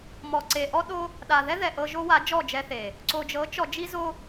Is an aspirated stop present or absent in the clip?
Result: absent